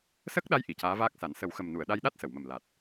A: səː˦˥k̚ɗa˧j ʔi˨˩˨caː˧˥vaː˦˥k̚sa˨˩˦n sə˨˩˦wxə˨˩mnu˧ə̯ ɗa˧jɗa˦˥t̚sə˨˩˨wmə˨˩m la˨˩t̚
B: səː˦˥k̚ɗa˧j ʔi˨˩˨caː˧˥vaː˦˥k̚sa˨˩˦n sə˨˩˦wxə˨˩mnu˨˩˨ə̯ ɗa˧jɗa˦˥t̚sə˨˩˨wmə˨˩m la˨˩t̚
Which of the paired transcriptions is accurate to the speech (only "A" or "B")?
B